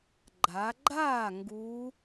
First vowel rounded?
no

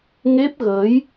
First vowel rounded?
no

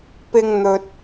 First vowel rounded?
no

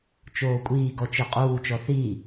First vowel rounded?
yes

